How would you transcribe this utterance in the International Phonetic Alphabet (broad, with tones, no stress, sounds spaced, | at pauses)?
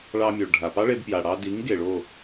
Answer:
ɭ ɑ˧ mʲ o˩ ɭ ɖʱ a˩ p ɑ˥ ɭ e˧ b p j a˩ ɽ ɑ˧ d i˩˥ ŋ ɡ e˩ ɭ o˥˩